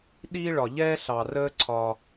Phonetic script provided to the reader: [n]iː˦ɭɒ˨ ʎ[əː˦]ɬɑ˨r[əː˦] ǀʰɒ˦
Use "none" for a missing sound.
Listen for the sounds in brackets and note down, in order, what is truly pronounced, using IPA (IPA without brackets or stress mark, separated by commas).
ɗ, ɛː˦, əː˦